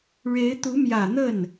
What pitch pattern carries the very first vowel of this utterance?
rising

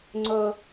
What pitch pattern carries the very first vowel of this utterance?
high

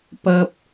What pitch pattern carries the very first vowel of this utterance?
low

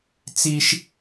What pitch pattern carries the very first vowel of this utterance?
high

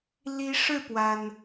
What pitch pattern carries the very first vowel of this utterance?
rising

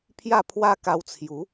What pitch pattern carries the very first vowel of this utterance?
falling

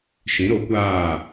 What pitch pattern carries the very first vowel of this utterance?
rising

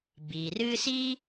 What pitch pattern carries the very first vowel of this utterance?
low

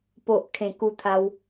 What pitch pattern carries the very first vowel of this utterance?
low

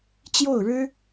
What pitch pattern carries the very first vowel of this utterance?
falling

